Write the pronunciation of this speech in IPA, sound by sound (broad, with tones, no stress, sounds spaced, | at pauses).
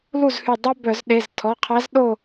l u˥˨ z h y˧˩ dˤ œ˥ b œ˧˩˧ z ɗ e˩˧˩ z tʰ ɔ˩˧˩ qʰ æ˧˥ z ɗ o˥˨